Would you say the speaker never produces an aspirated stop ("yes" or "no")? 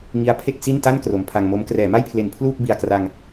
no